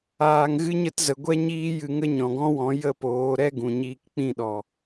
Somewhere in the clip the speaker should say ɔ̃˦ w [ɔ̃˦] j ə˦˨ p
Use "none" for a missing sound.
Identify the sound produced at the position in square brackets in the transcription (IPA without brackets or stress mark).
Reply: ɔ̃˨˦